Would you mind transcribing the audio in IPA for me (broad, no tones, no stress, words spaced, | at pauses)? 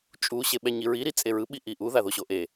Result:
t͡ʃʼuɕe ɓɛɲiɹi ɾit͡sʼeɹɯ ɓiʔiʔuða ðoɕoʔe